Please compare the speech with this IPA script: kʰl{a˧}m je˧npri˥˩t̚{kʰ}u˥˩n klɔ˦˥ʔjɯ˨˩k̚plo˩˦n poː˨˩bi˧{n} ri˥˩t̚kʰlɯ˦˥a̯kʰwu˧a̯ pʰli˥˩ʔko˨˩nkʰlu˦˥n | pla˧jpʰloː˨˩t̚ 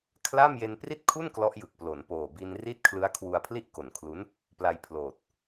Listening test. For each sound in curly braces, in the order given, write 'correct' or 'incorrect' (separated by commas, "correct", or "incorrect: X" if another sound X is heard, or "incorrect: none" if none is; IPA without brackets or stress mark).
incorrect: a˥˩, correct, correct